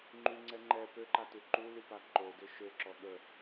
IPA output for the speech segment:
ŋ͡ǃ y ŋ͡ǀ ɛ ŋ͡ǃ ɛ p ø ǃ a t u ǃ u l y p a ǃ o d ø ʃ ø ǁ ɔ ɠ ə

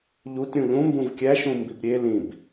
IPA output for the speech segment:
ʎ u t ɾʲ ũ ʎ ũ m b ũ v kʲ æ ʃ ũ m b i b ɾʲ e l ĩ b

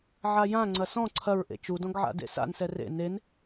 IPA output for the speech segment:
ʕ a j ã ŋ͡ǀ ɐ s ɔ̃ ǀʰ ɐ ɹ ʔ ḛ t͡ʃ u d ɔ̃ ɡ ʕ a̰ d ḛ s a̰ n s ɛ r ḛ n e n

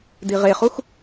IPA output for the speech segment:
d i ʁ e χ u x

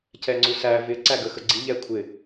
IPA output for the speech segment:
c ɛ ŋ͡ǀ u s æ v ɪ ǀ æ ɡ ə x ə ɡ͡ǀ i ʎ ɛ kʷʰ ɪ

